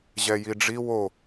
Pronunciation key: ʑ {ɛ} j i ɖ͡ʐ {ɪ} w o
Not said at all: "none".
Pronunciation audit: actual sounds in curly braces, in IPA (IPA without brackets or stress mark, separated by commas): ɛ, i